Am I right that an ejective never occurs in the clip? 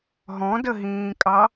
no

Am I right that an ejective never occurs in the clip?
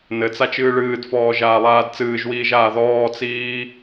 yes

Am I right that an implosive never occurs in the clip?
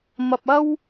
yes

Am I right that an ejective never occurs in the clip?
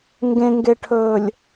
yes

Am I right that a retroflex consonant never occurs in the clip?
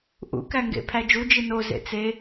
yes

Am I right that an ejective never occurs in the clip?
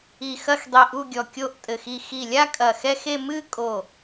no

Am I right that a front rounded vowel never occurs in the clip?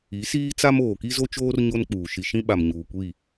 yes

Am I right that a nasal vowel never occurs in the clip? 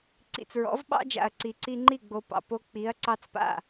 yes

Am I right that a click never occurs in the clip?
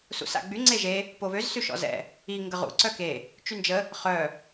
no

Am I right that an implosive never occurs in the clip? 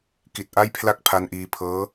yes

